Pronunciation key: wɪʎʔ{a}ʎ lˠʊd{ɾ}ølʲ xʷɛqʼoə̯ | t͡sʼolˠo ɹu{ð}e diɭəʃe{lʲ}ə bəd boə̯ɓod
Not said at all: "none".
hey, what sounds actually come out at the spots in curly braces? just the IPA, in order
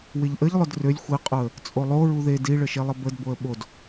ə, r, ð, lˠ

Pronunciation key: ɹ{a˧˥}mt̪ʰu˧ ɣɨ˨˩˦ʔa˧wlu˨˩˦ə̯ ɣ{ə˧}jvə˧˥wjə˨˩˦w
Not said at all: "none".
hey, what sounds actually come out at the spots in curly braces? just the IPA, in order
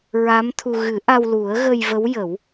a˧˥, ə˧

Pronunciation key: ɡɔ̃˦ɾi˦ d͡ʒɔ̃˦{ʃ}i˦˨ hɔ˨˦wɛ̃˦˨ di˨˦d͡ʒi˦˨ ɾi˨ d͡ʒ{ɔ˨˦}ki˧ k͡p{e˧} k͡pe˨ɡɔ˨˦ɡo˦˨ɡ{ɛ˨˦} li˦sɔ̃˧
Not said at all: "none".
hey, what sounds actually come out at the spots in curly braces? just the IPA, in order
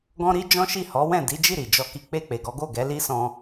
ʃ, ɔ˧, e˧, ɛ˨˦

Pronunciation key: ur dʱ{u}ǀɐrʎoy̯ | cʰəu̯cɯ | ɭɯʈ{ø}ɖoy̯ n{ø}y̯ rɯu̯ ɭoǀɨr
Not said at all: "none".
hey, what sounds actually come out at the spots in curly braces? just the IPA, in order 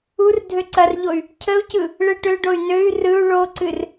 ø, ø, ø

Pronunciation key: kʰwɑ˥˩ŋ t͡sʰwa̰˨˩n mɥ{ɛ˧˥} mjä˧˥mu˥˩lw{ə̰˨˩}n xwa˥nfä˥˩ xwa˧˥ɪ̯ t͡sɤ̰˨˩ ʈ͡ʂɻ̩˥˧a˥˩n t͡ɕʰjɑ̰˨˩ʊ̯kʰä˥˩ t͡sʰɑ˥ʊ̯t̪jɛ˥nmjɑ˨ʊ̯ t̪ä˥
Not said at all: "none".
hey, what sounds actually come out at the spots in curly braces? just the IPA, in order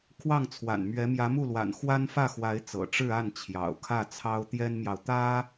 ɛ˧˥, a̰˨˩

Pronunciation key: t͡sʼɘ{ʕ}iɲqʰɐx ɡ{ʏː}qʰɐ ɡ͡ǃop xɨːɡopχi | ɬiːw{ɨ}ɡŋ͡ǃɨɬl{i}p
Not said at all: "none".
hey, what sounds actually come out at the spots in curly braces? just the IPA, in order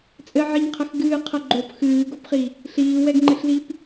ʕ, ɨː, ɛ, i

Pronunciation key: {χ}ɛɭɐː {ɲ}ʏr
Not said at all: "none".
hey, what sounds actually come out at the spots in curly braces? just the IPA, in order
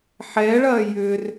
ħ, j

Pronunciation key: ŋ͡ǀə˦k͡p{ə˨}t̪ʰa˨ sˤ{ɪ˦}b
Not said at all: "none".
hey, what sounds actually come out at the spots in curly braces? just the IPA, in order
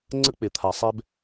ɪ˨, ɛ˦

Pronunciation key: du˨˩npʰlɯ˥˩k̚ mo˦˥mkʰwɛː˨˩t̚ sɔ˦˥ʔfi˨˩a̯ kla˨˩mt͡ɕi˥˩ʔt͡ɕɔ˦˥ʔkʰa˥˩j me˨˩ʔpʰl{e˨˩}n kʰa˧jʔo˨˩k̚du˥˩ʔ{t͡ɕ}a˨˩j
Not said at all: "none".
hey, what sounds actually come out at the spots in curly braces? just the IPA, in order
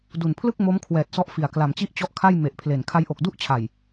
e˨˩, t͡ɕʰ

